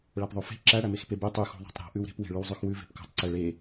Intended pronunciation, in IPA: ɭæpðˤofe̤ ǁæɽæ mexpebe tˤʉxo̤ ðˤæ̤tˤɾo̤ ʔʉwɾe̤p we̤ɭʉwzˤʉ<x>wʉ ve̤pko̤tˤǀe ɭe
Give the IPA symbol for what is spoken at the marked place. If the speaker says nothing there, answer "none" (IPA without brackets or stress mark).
x